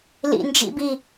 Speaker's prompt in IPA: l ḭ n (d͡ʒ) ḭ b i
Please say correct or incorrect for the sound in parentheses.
correct